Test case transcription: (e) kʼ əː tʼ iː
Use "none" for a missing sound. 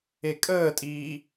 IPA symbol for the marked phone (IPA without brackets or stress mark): e